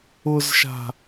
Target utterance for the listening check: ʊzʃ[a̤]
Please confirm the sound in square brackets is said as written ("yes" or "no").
yes